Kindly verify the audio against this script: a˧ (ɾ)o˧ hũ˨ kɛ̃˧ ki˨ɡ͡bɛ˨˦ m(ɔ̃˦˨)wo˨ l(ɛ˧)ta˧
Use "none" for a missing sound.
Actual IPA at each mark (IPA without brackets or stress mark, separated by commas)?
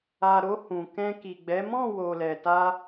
ɾ, ɔ̃˦˨, ɛ˨